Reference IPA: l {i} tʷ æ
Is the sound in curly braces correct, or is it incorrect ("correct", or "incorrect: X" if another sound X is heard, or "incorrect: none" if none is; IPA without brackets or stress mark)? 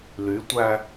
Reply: incorrect: y